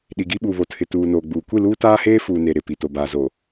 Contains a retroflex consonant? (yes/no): no